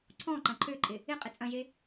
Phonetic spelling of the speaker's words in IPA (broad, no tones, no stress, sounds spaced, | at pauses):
ǀʰ ɔ̃ ǃ ɐ̃ ǃʰ ø ǃʼ ɪ | ɪ qʼ ɪ t͡sʼ ɐ̃ ʒ e